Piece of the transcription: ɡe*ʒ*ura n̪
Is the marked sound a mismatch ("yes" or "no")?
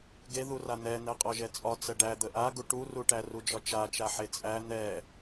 yes